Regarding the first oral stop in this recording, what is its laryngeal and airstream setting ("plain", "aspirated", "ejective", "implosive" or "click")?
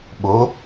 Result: implosive